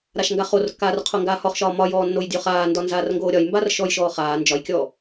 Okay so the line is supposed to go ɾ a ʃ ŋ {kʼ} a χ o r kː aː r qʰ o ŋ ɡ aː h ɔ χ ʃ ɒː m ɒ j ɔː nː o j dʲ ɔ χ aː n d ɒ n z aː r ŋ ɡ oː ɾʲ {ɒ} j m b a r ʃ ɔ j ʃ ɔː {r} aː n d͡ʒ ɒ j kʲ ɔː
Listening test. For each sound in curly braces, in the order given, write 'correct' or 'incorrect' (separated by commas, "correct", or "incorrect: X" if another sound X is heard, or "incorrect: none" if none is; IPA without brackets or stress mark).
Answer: incorrect: ɡ, correct, incorrect: χ